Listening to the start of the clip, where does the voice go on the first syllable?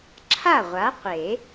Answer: falling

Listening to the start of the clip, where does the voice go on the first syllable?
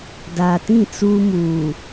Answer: low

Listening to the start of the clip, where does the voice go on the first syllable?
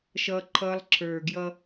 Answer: high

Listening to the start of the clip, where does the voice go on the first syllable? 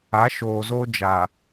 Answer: rising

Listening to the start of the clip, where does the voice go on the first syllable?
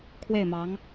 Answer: falling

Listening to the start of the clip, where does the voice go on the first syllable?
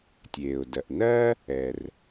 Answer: low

